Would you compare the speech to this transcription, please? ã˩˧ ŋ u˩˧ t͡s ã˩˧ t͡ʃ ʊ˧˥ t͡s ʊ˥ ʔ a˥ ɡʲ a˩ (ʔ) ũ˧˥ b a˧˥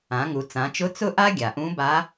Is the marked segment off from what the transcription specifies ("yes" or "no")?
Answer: no